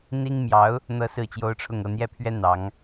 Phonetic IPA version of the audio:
n̪ i˥ ŋ m j ɑ˧˥ ʊ̯ | n̪ ɤ˥ s ɹ̩˥˩ t͡ɕ j o˥ ʊ̯ ʈ͡ʂʰ ʊ˥˧ ŋ ɤ˥˧ n̪ j ɛ˥˩ pʰ ɥ ɛ˥ n̪ ɑ˧˥ ŋ

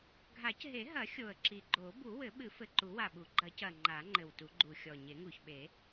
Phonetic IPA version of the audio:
ɡʱ a˨˩˦ c ɦ e˨˩˦ ɦ ɐ˨˩˦ xʲ o˨˩ ə̯ ǁ i˨˩ ɡ͡ǃ o˨˩˦ b u˨˩˦ w ɘ˨˩˦ ɓ ɨ˨˩˦ f ɘ˨˩ ǃ u˨˩˦ w a˨˩ ɓ u˨˩˦ ɡ͡ǃ ɐ˨˩˦ c ɐ˨˩ ŋ͡ǃ a˨˩˦ ŋ͡ǃ ɘ˨˩ w t u˨˩˦ ɡ͡ǃ u˨˩ xʲ ɔ˨˩ ɲ e˨˩˦ ŋ u˨˩ ç ɓ e˨˩˦

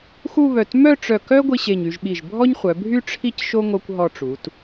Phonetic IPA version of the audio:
x u˥˧ β œ˧˩ t m œ˥˧ ʈ͡ʂ œ˧˩ k œ˥ ɡʷ i˧ ɕ e˧˩ ɲ y˧ ʒ ɓ i˧˩ ʒ bʱ ɔ˥ ɲ χʷ œ˩˧ bʱ y˥ ʈ͡ʂʰ i˧ c ʃ o˧ ŋ o˧ kʷ ɦ ɔ˧ ʈ͡ʂ u˩˧ t

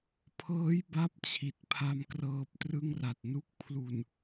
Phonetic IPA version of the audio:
pʰ ɤː˦˥ j b a˥˩ p̚ t͡ɕʰ i˨˩ t̚ pʰ a˧ m k r ɤː˦˥ p̚ t r ɯ˥˩ ŋ r a˨˩ t̚ n u˦˥ k̚ pʰ l u˨˩ n

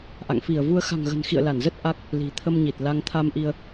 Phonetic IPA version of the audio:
ʔ a̰˧˨ ŋ f i˧˩ ə̯ v u˧ ə̯ x a̤˨˩ ŋ ɣ ə̤˨˩ n x ḭ˧˨ ə̯ l a˧˩ n z ə˦˥ t̚ ʔ a˦˥ k̚ | l i̤˨˩ t̪ʰ ə˧ m ɲ i˨˩ t̚ l a˧ ŋ t̪ʰ a˧ m ʔ i˧ ə̯

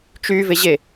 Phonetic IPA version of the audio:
t͡ʃ y v e ʑ e

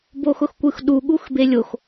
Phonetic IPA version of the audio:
b o x ʊ x kʷ ɯ x ɗ u ɠ u x b e lʲ o x

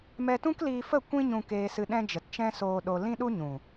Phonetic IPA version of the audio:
m ɛ˧ t ũ˦ k l iː˧ f ə˦˨ kʷ ĩ˧ ɲ ũ˨ k eː˧ s ɨ˧ ɗ ɛ̃˦ d͡ʒ ə˨ t t͡ʃ ɛ̃˦ s oː˧ ɗ o˧ l ĩ˦ ɗ u˦ ɲ ũ˨

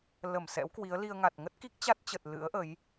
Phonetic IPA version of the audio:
l ə˧˩ m s ɛ̰˧˥ w k w i˨˦ ə̯ l i˧ ə̯ ŋ a˨˩ t̚ ŋ ə˦˥ t̚ k i˦˥ k̚ t͡ɕ a˦˥ t̚ t͡ɕ ə˨˩ t̚ l ɨ̰˧˥ ə̯ ʔ ə˨˦ j

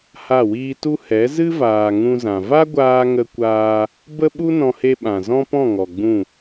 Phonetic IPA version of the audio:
h a˦˨ w iː˦ t u˧ h ɛ˨˦ z ɨ˦ v aː˨ ŋ ũ˧ z ã˨ v a˦ ɡʷ aː˧ ŋ ə˧ kʷ aː˧ | b ə˦ ɓ u˦ n ɔ̃˧ h e˧ ɓ ã˨ z ɔ̃˦ p ɔ̃˦˨ ŋ ɔ˨ ɡ͡b ũ˦˨

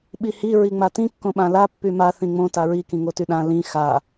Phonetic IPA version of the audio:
ɓ i h i ɹ i ŋ͡m a t ĩ kː õ ɓ ã l a pː y m a θ ĩ ŋ͡m õ t a ɹ i k ĩ ŋ o t y ɗ ã l ĩ x a

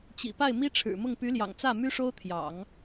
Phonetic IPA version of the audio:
t͡ɕ ḭ˨˩ p a˥˩ ɪ̯ m i˥ ʈ͡ʂʰ ɻ̩˨˩ m ʊ˥˩ ŋ p y˧˥ l j ɑ̰˨˩ ŋ t͡s ä˥˩ m y˥ ʂ o˥ ʊ̯ t̪ʰ j ɑ̰˨˩˦ ŋ

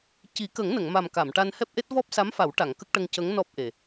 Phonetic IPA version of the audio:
c i˨˩˦ k ə˨˩˦ ŋ n ə˨˩˨ ŋ m a˨˩ m k a˨˩˨ m ʈ a˧ n h ɛ˦˥ p̚ ʔ e˦˥ t̚ v ɔ˦˥ p̚ s a˧˥ m f a˨˩˦ w ʈ a˨˩˨ ŋ k ə˦˥ k̚ ʈ ə˧ ŋ c ə˧˥ ŋ n ɔ˦˥ p̚ ʔ e˨˩

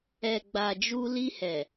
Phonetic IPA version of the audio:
ɛ˨ ɡ͡b a˨ d͡ʒ u˧ l i˧ h ɛ˨

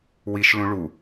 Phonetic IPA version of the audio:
w i ʃ l ũ ɭ u

